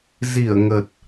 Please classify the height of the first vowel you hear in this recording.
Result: high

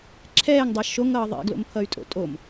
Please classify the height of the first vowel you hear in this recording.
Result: mid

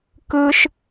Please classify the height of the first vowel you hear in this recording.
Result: high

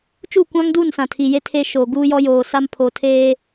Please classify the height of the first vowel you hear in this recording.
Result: high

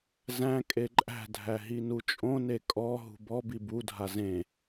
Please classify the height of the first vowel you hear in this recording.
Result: low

